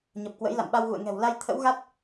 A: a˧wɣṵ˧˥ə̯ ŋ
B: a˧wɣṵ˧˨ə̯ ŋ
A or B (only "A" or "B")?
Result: B